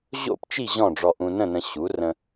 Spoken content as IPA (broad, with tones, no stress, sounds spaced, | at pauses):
ʑ o̰˥˨ p t͡ʃ i˥˨ ʑ ɔ̃˥˨ ɖ͡ʐ ɔ˧ ʔ ũ˧ n ə̃˥˨ n ə̃˧ ɕ u˩˥ r ə̃˧